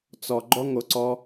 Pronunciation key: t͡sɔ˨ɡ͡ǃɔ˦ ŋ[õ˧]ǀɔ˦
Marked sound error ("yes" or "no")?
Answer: yes